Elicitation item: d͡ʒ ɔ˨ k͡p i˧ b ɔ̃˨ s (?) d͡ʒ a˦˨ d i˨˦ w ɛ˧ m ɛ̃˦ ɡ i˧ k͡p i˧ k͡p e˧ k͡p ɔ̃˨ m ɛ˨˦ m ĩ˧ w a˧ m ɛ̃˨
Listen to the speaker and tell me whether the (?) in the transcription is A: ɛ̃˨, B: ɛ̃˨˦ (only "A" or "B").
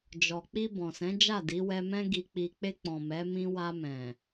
B